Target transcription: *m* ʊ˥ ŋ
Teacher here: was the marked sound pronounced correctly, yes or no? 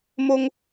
yes